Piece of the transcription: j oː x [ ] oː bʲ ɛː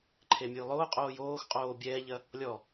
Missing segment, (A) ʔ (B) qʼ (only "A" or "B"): B